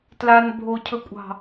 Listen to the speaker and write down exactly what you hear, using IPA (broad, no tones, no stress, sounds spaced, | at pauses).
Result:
t l a n bʱ o cʰ ɵ kʷʼ ɑ̤